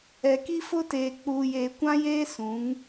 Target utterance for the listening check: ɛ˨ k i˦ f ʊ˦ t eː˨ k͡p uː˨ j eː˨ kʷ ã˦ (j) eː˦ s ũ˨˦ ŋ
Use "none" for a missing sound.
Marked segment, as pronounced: j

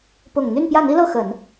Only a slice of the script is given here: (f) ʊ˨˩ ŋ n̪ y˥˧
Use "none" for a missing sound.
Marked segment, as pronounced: p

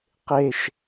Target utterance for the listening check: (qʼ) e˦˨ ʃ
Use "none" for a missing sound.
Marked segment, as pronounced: q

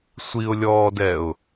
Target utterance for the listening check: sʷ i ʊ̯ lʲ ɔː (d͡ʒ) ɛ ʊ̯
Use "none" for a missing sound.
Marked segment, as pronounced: d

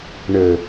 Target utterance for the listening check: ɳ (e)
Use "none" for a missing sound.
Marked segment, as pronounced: ɘ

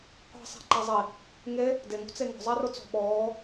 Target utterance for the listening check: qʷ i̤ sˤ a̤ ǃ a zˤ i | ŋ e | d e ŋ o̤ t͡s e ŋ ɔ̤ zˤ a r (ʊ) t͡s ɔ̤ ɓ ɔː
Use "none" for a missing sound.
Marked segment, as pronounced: ʊ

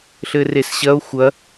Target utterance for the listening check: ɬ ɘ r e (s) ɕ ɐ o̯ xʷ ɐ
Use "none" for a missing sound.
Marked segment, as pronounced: s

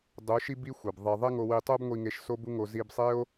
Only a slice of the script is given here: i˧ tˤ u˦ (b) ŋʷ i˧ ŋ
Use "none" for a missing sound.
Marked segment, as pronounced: b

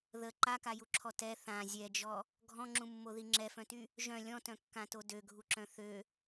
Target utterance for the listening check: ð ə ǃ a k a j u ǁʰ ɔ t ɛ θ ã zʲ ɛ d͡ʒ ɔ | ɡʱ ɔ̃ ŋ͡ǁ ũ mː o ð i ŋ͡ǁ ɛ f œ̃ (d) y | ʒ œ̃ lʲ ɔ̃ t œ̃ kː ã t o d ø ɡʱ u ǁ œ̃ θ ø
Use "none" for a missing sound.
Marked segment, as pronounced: t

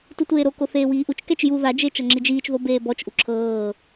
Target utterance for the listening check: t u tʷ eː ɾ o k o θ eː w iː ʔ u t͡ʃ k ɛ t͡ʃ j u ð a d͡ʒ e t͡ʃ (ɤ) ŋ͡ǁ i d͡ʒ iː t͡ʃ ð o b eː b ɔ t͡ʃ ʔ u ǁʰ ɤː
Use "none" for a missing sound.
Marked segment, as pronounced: ɤ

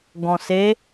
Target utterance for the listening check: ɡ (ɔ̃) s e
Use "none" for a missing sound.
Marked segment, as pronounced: ɔ̃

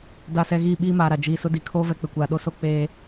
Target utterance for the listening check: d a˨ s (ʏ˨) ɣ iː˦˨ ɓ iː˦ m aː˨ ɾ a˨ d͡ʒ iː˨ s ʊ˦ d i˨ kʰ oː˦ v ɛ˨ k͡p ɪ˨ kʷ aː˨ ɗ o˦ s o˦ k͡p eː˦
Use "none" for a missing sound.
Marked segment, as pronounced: ɛ˨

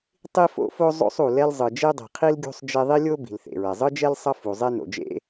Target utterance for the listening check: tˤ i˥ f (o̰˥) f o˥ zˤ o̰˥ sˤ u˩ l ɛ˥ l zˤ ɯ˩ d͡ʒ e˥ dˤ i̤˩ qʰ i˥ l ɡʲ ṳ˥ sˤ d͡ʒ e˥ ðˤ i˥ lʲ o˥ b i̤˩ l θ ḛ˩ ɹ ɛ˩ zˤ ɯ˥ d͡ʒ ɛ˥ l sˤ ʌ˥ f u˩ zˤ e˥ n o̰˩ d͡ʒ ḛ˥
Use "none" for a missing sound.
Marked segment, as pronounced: o̰˥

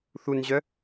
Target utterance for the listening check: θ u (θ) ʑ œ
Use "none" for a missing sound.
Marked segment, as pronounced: n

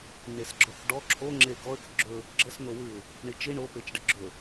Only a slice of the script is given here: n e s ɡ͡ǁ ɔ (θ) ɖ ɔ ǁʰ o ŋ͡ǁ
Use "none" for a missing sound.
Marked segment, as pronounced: θ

